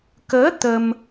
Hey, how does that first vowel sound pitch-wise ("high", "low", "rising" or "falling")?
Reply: rising